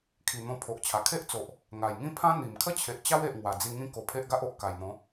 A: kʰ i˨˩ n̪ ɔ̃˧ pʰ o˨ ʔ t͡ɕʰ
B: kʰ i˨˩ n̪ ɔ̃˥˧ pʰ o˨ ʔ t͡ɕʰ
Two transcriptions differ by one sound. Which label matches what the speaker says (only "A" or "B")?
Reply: A